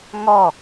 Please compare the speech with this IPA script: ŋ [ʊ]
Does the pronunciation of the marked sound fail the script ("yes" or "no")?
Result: yes